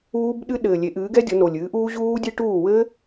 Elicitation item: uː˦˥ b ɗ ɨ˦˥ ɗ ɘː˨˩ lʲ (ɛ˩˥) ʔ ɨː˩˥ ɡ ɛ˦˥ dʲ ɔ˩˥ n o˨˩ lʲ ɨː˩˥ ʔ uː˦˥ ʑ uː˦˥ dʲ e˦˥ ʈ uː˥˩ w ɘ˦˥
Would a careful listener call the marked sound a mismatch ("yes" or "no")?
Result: yes